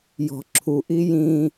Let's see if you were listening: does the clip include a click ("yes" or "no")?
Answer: yes